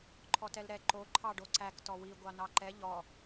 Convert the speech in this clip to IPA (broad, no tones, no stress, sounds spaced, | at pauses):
ǃʰ ɔ t ɛ l ɾ ɛ ǃ o ǃʰ ɑ ɖ o ǀ æ k t ɔ w i ɡʷ ɑ n ɑ ǃ ɛ ʎ ɔ